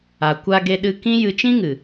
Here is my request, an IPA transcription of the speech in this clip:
a˨ kʷ a˧ ɡ e˧ ɗ ɨ˧ k ĩ˦ j ɨ˧ t͡ʃ ĩ˦ ŋ ɨ˨

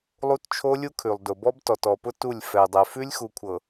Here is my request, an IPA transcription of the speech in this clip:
lˠ u˦ t t͡ʃʰ o˦ lʲ u˦ kʰ ʉ˨ lˠ d ʊ˨ b ɔ˦ b t ɔ˨ t ɔ˨ p ʊ˦ t u˦˨ lʲ f ɛ˨ dˤ ɛ˨ f ʉ˦ lʲ x u˨ kʷʰ ɤ˨

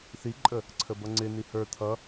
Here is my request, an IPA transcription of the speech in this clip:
θ i ǃʼ ə | ǀʰ ə b ʌ ŋ͡ǀ ɪ n i h ə˞ t̪ʰ ʌ

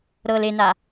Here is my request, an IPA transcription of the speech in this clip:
ɾ ɤ l e n a

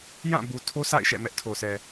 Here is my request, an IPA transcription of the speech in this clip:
j ã˦˨ b u˨ tʰ o˦ sʰ a̰˦˨ ɪ̯ ʃ ɛ̰˦˨ m ɛ˦ ʔ tʰ o˨ s ɛ˨

